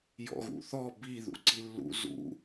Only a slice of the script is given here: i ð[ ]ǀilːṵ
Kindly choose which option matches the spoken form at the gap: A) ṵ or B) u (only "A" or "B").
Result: A